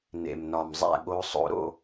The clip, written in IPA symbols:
n ḛ˨˩ m n ɒ˨˩ m zˤ æ̰˥˨ ɠ o˧˥ sˤ o̰˧˩˧ ɾ o̰˥˨

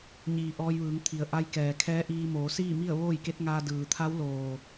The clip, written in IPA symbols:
ɲ iː˩ ʔ ɔː˧ j ʋ ɯː˩˧ ŋ t̪ʰ i˩ ə̯ ʔ a˧ j k ɛː˩ kʰ ɛː˧˥ ʔ iː˧ m oː˩˧ s iː˥˨ m i˥˨ ə̯ ʋ oː˥˨ j k e˧˥ t̚ ŋ aː˧ d ɯː˩ t̪ʰ a˧˥ w l oː˩

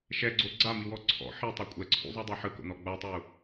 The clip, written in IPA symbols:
ʃ ɛ ɡ͡ǀ o ɡ͡ǀ a m i w ɔ ǀʰ ɔ̰ ħ i tˤ a kʷʼ ɛ ǀʰ ṵ zˤ u dˤ a ħ ɯ k o̰ n ɔ ɡ͡b a tˤ u

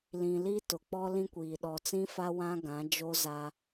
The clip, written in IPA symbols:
l ĩ˨ l i˦ t ʊ˨ k͡p ɔ˦ l ĩ˦ kʷ iː˨ ɗ ɔ˨ t͡s ĩ˦ f a˦ w ã˦ ɡ ã˨˦ d͡ʒ o˦ z aː˦

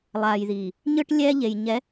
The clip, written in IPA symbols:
lˠ aː˨ j ð iː˨ | ɲ ɯ˦ ʈ lʲ ɛː˦ ʎ e˨ j ɲ ɛ˨˦

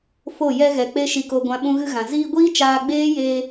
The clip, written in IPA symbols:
f o˦˨ j ɛ˧ ɣ ɛ˨ k͡p e˧ ʃ i˨ k o˨ ɡʷ ã˧ ɓ ũ˧ ɣ ɨ˧ ɣ ã˨ z iː˧ ɡʷ iː˦ t͡ʃ aː˧ ɡ͡b eː˦ j eː˧

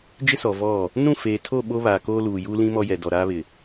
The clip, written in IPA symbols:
d͡ʒ ɪ˦ s ɔ˨ v ɔ˦˨ | n ũ˦˨ f eː˨ tʰ o˦˨ ɓ o˦ β aː˨ k oː˦ l uː˨ j uː˦ l ĩ˦ m ɔ˦ j ɛ˨ d ɔ˨ ɾ aː˦ β ɪ˨

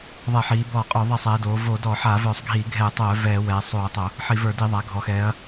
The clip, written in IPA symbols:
ðˤ ɛ˧˩˧ ħ iː˩˧ b ɔː˧˩˧ qʼ œ˧˩˧ ðˤ i˧˩˧ sˤ ɛː˩˧ d oː˩˧ v oː˧˩˧ d ɔː˧˩˧ ħ aː˧˩˧ v œː˧˩˧ sˤ ɡʱ iː˧˩˧ ɡʱ ɛː˧˩˧ tˤ œː˧˩˧ v ɛː˧˩˧ w ɛː˩˧ sˤ oː˧˩˧ tˤ o˧˩˧ | ħ i˧˩˧ v ə˞˧˩˧ d i˧˩˧ ðˤ a˩˧ ɡʱ ɔ˩˧ x ɛː˩˧ ɐ̯

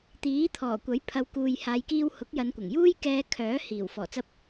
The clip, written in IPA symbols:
t̪ iː˨˥ t̪ʰ ɔː˨˩ kʷ ɐ˨˥ j pʰ ɐ˨˧ w k uː˨ j h aː˨˧ j k iː˧ w h ʊ˨˥ k̚ j ɐ˨˧ n kʷ ɐ˨˩ ŋ j uː˥ j k ɛː˧ kʰ œː˨˥ h iː˨˩ w f ɔː˨˩ t͡s ɐ˧ p̚

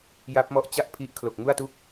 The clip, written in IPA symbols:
j a˦˥ p̚ m ɔ˦˥ ʔ t͡ɕ a˥˩ ʔ pʰ i˦˥ ʔ kʰ l o˨˩ k̚ ŋ u˥˩ a̯ t u˥˩ k̚

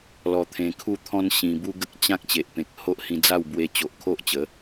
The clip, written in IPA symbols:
l ɔ˧ t̪ʰ ẽ˧ kʰ u˥˧ t̪ʰ ɔ̃˦ n ɕ ĩ˧ b u˦ ɡ ə˦ k̚ t͡ɕ ã˦ k̚ t͡ɕ e˨ ʔ p ẽ˨ k̚ h o˦ ʔ h ĩ˧ d͡z a˥˧ w b w e˧ t͡ɕ o˨ ʔ kʰ o˦ ʔ t͡ɕ ə˨˦

